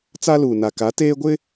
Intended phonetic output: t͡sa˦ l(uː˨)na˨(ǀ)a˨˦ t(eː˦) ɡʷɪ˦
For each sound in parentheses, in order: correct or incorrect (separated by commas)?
correct, incorrect, correct